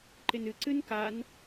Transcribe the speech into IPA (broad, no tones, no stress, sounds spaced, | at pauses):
ǃ ɪ n ɨ ǀ ɨ n k a n